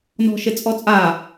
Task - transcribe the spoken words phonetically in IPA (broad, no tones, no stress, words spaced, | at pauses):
nɔ̤ʃet͡sʼɔt͡sʼa